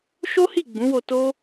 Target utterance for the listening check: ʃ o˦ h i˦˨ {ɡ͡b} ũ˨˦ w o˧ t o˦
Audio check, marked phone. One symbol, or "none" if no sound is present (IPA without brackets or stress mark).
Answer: ɡ͡b